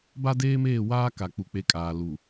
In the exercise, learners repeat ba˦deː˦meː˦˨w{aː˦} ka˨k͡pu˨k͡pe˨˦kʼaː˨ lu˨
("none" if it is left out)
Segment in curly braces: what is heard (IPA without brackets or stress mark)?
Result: aː˦